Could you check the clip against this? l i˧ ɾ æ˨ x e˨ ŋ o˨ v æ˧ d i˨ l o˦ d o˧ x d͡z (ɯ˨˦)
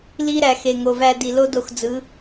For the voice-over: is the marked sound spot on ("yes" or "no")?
yes